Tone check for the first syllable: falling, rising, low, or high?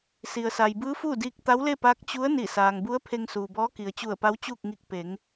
low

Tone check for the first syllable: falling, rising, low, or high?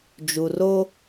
low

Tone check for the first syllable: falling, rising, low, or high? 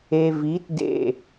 low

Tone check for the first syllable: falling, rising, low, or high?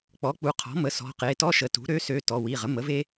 rising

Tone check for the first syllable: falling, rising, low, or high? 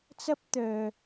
high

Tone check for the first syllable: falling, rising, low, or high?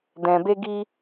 low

